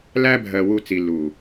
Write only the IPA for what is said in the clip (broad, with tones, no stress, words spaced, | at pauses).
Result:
læ˦bʱɜ˨ wu˧t͡si˨lːuː˨